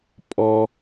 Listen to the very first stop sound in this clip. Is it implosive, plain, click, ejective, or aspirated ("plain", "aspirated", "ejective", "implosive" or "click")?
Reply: ejective